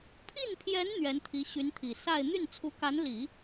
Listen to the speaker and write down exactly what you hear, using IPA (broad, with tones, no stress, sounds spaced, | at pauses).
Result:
pʰ i˥˩ n pʰ j ɛ˧˥ n n̪ ɥ ɛ˧˥ n t̪ʰ i˧˥ ɕ y˧˥ n t̪ʰ i˨˩ s a˥˧ ɪ̯ n̪ y˥˩ n t͡sʰ u˧˥ k a˧˥ n l i˨˩˦